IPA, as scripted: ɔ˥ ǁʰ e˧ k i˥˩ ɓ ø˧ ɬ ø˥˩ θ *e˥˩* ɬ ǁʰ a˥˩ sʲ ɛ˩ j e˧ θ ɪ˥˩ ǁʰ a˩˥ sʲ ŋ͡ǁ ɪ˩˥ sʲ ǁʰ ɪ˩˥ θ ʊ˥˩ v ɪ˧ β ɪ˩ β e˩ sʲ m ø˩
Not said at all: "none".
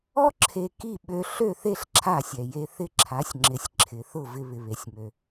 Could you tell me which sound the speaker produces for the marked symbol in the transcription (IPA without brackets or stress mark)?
e˥˩